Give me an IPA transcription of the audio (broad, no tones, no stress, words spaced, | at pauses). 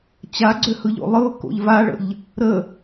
t͡ɕaɡ͡ǀøhɯʎo̰ lˠɯʊ̯ko̰ʎ vaɭə̰ʎ | ɾə